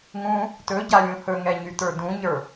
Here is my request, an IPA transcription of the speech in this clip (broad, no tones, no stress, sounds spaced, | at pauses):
ŋ ũ | t ɵ ɟ a lʲ ũ h ɵ ŋ ɛ ɲ y t ə˞ d ũ ɲ ə˞